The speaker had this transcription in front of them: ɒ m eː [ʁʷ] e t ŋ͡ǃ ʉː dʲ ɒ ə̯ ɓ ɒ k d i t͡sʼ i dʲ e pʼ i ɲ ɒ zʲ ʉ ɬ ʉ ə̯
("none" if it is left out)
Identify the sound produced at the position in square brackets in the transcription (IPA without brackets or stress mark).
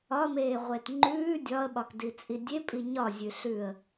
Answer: ʁʷ